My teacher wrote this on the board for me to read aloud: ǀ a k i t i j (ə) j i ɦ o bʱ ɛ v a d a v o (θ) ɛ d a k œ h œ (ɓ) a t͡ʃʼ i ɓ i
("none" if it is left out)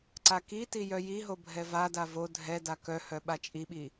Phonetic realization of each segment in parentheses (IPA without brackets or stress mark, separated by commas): œ, dʱ, ɓ